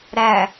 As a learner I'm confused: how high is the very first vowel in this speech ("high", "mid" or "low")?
low